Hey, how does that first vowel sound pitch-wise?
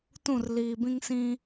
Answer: falling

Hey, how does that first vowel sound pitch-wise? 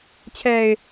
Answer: low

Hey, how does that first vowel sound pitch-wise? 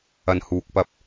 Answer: low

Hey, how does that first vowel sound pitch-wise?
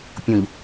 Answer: low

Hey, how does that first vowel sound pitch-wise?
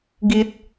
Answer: low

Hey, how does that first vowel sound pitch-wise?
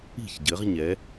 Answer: falling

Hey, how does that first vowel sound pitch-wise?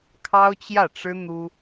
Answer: high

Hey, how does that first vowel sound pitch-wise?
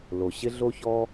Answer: low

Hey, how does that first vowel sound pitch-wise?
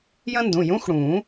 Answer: high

